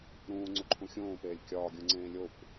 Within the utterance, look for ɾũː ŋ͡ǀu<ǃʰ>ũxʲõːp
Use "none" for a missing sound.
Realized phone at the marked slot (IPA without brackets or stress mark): ǃʰ